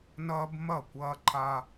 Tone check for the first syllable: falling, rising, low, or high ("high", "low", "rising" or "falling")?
high